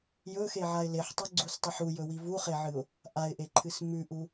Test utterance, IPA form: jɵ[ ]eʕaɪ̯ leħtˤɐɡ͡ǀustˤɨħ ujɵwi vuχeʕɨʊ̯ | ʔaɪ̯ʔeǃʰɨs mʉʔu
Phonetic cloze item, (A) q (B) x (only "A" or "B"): B